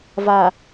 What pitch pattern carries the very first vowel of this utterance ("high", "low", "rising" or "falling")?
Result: low